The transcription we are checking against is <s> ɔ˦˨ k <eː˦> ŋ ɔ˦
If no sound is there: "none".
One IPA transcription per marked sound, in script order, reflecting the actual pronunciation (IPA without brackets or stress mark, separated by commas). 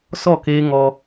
s, eː˦